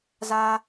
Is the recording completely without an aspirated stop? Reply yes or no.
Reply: yes